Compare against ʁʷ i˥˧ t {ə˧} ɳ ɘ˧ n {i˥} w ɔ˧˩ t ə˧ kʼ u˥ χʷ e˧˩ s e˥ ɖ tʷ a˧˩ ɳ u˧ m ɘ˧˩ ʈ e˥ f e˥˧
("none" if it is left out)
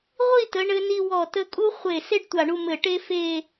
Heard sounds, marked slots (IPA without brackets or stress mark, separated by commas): ə˩˧, i˧